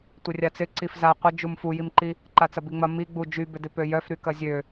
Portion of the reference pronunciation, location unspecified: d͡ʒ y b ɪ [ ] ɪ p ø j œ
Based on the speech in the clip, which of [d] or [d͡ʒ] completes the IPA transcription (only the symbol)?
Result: d